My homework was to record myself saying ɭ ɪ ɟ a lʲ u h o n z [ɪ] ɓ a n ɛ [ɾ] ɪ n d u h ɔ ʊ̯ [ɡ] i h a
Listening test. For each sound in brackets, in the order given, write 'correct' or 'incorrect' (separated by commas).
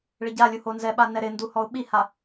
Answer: incorrect, correct, incorrect